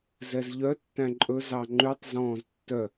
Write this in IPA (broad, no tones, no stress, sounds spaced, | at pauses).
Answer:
z ɛ z ʎ œ tː æ̃ ǃʼ ɵ z ɑ ŋ͡ǃ ʉ tˤ z ɔ̃ː z tː œ